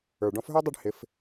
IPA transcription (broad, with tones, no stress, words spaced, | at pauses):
ə˞˨˩ɖɔ̃˧˥fɦə˞˥dˤɛ˥˧ɖ hɪ˧˥f